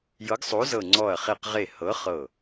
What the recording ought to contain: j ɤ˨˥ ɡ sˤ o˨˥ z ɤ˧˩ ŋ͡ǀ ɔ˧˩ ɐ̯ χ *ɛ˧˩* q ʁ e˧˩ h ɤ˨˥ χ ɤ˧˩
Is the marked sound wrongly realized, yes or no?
yes